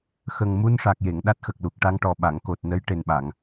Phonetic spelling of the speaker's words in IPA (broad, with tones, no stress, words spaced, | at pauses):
xə˨˩ŋ mu˧nʂa˨˩k̚je˨˩˨ŋ ɗa˦˥t̚xə˨˩k̚lu˨˩k̚ ʈa˧ŋʈɔ˨˩ ɓa˨˩˨ŋko˨˩t̚nə˧˥j ʈe˨˩nɓa˨˩˨ŋ